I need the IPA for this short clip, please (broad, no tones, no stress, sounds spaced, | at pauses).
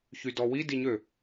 ç y d ɔ w i d i ɲ ø